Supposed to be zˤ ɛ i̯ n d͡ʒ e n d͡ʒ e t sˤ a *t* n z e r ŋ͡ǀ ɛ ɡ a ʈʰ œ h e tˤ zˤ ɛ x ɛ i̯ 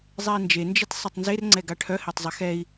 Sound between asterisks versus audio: incorrect: tˤ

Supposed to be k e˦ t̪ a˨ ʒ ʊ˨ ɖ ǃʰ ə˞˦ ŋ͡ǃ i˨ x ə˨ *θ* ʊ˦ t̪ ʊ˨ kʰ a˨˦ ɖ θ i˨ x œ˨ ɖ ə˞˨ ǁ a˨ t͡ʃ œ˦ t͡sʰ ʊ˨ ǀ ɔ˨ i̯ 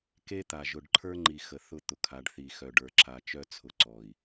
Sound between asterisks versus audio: correct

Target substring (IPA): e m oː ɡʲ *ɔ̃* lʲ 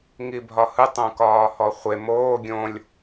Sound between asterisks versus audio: incorrect: õ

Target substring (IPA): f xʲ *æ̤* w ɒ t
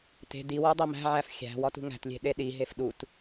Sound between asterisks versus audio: correct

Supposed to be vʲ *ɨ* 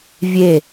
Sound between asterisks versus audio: incorrect: e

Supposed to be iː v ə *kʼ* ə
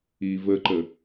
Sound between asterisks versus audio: incorrect: ǃ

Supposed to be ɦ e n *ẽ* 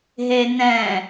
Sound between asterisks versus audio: incorrect: ɛ̃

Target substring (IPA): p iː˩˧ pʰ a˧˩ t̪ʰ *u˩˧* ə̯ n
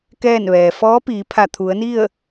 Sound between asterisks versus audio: correct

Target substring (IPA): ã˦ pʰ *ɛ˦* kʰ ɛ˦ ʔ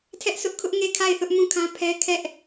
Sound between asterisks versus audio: correct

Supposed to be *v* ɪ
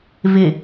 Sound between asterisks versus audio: correct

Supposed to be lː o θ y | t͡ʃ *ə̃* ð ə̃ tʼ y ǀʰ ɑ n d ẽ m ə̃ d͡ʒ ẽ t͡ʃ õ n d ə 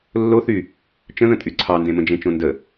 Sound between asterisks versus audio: correct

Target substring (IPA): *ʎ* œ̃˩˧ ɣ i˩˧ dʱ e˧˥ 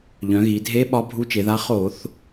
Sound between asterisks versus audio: correct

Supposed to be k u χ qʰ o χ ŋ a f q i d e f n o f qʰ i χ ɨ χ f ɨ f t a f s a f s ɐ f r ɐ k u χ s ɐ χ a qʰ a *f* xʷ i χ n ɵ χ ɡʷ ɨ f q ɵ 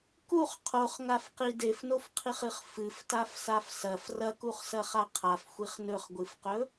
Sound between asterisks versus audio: correct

